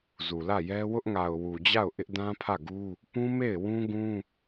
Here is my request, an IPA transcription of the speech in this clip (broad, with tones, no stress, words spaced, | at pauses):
zu˨lä˦˨ jɛ˦ wʊ˦ʔŋa˨ʊ̯wu˨d͡ʑa˦˨ʊ̯ ʔɪ˦ʔ dã˦pʰä˦˨ɡu˦ | pũ˦me˦˨ɪ̯ wũ˦ɡũ˦